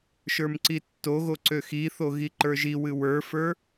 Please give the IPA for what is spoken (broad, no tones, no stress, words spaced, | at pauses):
ʃə˞mǀitːoɣo ǀøxiθo ɣiǃə˞ʒiwɨ wə˞fə˞